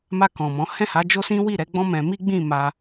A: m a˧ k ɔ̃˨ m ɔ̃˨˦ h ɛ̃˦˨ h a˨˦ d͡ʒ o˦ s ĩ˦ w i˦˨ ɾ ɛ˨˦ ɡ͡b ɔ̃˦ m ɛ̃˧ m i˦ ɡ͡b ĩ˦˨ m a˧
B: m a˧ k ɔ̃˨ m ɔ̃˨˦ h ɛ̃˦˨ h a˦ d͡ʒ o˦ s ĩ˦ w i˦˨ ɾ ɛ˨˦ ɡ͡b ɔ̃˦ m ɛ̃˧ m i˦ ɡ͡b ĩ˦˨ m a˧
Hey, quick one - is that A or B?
A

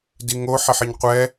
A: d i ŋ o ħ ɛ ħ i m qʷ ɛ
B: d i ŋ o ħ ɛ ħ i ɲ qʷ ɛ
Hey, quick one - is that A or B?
B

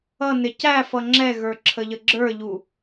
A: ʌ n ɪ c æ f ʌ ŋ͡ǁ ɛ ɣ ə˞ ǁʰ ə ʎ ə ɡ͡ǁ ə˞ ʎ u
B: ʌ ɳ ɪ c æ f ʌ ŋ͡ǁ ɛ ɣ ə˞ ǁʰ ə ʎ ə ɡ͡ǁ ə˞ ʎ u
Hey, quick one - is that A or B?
A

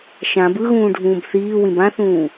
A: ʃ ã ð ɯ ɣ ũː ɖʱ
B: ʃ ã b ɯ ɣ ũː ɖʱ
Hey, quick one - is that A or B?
B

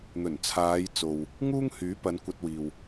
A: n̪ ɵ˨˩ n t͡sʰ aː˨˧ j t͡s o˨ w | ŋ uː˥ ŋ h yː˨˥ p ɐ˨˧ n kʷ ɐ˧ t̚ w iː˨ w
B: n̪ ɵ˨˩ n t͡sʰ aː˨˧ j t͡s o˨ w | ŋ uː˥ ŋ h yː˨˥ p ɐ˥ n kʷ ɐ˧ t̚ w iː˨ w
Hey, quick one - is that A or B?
A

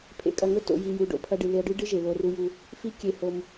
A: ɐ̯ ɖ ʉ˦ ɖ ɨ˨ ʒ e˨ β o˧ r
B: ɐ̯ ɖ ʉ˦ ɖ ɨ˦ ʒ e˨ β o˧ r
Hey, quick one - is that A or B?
B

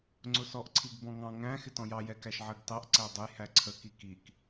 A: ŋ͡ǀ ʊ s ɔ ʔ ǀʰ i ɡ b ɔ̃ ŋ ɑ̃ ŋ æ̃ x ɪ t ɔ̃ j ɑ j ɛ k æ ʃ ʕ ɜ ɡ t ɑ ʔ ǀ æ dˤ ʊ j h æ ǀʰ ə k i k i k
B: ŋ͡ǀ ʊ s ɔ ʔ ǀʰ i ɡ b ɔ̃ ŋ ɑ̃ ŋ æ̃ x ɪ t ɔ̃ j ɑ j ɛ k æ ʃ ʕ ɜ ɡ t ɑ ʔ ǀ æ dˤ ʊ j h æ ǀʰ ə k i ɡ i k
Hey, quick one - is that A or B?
A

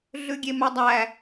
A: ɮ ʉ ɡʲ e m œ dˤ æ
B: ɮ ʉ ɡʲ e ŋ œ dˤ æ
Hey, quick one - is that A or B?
A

